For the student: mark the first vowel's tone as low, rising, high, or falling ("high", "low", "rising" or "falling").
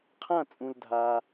falling